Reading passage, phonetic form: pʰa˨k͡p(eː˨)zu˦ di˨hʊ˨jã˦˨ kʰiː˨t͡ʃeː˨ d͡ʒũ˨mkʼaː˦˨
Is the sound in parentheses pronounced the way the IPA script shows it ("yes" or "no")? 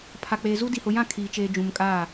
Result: yes